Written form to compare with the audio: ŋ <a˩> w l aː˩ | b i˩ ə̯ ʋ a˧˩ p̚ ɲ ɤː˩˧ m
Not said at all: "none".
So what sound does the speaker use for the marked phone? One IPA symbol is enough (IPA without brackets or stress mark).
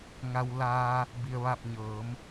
a˩